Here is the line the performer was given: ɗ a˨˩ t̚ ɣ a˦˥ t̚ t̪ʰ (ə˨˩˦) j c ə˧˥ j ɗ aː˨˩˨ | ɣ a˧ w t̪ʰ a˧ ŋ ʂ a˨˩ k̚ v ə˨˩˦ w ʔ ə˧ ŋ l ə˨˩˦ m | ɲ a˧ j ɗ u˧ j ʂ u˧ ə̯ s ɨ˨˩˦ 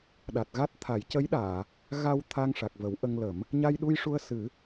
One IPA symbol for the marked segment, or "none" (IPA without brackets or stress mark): a˨˩˦